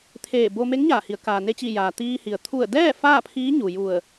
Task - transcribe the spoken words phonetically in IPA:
t̪ʰ eː˧˩ b o˧ m e˧˥ ŋ ɲ aː˧˩ h i˩˧ ə̯ k aː˩ n e˧ t͡ɕ i˧˩ j aː˩ t̪ iː˧ h i˩ ə̯ t̪ʰ u˧˩ ə̯ d ɛː˥˨ f aː˥˨ pʰ iː˧˥ ɲ u˩ j u˧˩ ə̯

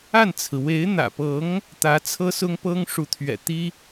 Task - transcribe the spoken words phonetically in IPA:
a˥˩ n t͡sʰ ɹ̩˩ w e˧˥ ɪ̯ n̪ ä̰˨˩ p ɤ˧˥ ŋ | t̪ ä˧˥ t͡sʰ ɤ˥ s ʊ˥ ŋ p ɤ˥ ŋ ʂ u˧˥ t̪ʰ ɥ ɛ̰˨˩ t̪ i˥

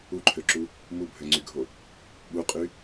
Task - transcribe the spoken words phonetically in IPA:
u ǃʰ ø ǁ u | m u bʱ ø ŋ͡ǀ y ɡʱ o | ɓ u qʼ y

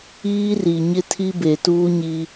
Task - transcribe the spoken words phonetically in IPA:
iː˦ r i˨ ɲ ɪ˦ tʰ i˦ b e˨ t uː˦ ɲ i˦

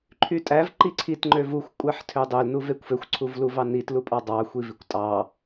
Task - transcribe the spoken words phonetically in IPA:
ǃʰ y tʼ æ v ǃ i ǀʰ i t ŋ͡ǃ ø v u xʷ kʷʼ æ ħ tʰ ø dˤ ø l n u v e kʷ f ø xʷ ǀʰ u v l u v ɑ n i t l u pʼ ɑ dˤ ɑ xʷ i v i kʷ tʼ ɑ

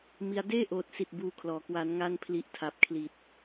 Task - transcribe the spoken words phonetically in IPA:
m i˧ a̯ d eː˥˩ ʔ oː˨˩ t̚ s i˨˩ t̚ b uː˧ kʰ l ɔː˩˦ k w a˩˦ n ŋ a˧ n pʰ l i˨˩ ʔ tʰ a˨˩ p̚ kʰ l i˨˩ t̚

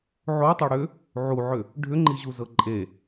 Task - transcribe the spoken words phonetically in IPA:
ʕ o tˤ o ɽ ʏ | ʕ u ʕ ʏ | ɖʱ ʏ ŋ͡ǃ i ʑ u z ɤ ǃʼ e

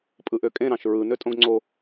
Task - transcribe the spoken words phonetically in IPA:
pʼ ɯ ʔ ø kʼ ẽ ɾ ɑ̃ ʃ ɹ ɯ n ø tʼ õ ɡ ŋ͡ǀ o

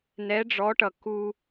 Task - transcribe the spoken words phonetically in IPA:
n ɛ˧˥ ɖ͡ʐ ɔ˧˥ ʈ ʌ˧ k u˧

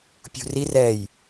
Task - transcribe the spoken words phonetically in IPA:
pʲ ṳ r i r ɛ j

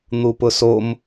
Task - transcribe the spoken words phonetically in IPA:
n̪ u p ʊ s o m

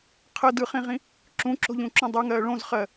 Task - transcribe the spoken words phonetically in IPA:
qʰ ə d ɯ χ ĩ ʁ ĩ | ǁ ũ ǁ o̤ ʎ ũ ǁ ũ dˤ u ŋ ɜː ɭ õ z χ ɜ

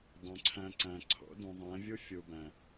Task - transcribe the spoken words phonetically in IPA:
dˤ ũ˨ ǀʰ æ̃˧ ǀ æ̃˨ ǀʰ o̰˨˦ d ũ˨ ðˤ æ̃˨˦ vʲ u˦ fʲ u˨ b æ̃˨

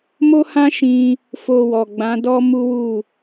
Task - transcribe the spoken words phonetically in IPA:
m o˦ h ã˦ ʃ ĩ˧ | f o˧ w ɔ˨ ɡ͡b ã˨˦ d ɔ˦ m u˦ w u˦˨

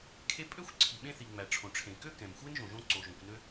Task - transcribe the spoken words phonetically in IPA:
kʰ e˥ pʼ ø˥ xʷ ǀʰ i˩ ɓ ẽ˥ θ i˩ ŋ͡m æ˩ ʈ͡ʂʰ õ˩ ʈ͡ʂʰ ẽ˩ k ø˥ k ɛ̃˩ m xʷ e˥ n ʒ õ˩ ʒ õ˥ ǀ o˩ ʒ õ˩ kʷ n ø˥

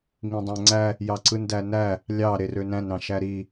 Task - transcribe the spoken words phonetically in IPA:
ŋ ĩ dˤ æ̃ ŋ͡ǀ æ | j ɑ ǀ ɯ n d æ n æ | lʲ ɑ ɾ e r ø n æ̃ n ɾ ɑ̃ ʃ æ ɾ i

